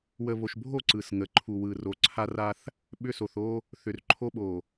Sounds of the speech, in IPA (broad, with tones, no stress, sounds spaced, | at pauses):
w ə˨ β o˨ ʃ bʱ o˦˨ ǀ ɯ˨ s ŋ ə˨ ǃʰ u˨ w ɯ˨ r o˨ ǀʰ a˦ r a˦ θ | ɓ ʏ˦ s o˨ θ o˦ | θ ʏ˨ r ǃʰ o˦ ɓ o˨